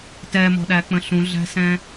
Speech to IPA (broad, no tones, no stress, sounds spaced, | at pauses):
t ɛ m ɔ̤ ɗ æ k͡p ə̃ ɬ ũ ɮ æ̤ s ɛ̃